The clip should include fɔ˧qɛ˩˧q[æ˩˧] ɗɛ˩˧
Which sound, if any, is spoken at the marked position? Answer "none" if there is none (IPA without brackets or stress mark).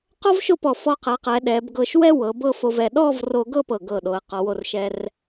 ɛ˩˧